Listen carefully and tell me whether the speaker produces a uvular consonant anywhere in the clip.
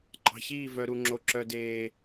no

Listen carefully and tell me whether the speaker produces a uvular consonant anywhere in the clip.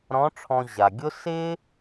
no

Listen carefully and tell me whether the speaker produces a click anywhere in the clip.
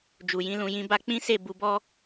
no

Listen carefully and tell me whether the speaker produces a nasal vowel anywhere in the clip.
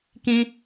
yes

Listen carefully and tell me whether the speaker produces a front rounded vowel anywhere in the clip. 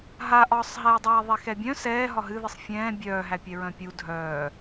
yes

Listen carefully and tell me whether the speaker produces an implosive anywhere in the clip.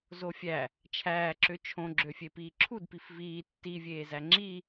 no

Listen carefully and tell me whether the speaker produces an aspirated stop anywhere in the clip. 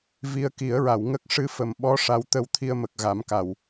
yes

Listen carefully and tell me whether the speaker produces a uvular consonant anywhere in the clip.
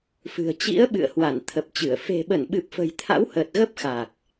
no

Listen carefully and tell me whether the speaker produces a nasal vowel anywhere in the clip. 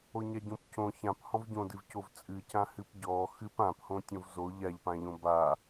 yes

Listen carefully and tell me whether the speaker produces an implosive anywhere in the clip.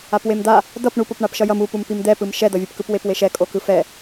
no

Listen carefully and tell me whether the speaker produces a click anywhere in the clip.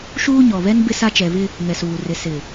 no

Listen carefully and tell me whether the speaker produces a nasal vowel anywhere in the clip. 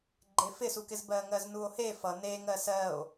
no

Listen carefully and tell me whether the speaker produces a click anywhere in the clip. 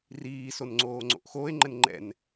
yes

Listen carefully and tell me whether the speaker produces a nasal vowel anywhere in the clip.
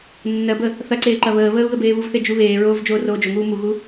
no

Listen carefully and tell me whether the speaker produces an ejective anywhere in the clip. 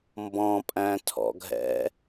yes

